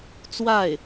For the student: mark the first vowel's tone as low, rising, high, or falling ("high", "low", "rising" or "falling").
falling